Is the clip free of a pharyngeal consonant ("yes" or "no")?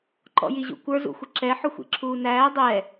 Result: no